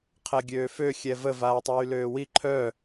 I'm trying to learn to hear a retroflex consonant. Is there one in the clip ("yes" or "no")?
no